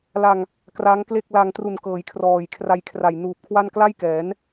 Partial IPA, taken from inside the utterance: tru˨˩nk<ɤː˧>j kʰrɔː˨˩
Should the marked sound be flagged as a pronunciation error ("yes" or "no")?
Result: yes